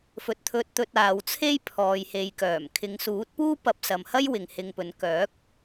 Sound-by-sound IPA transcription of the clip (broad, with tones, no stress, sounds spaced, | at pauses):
f ɵ˨ t̚ t̪ʰ ɵ˧ t̚ t̪ ɵ˧ t̚ aː˨˧ w t͡sʰ e˥ j pʰ ɔː˨ j h e˨ j k œː˨˩ m kʰ ɪ˨˧ ŋ s uː˨˥ t̚ p uː˥ p ɐ˨˥ p̚ s ɐ˨ m h ɐ˥ j w ɪ˨ ŋ h ɪ˧ ŋ p ɵ˨˥ n k œː˨˥ k̚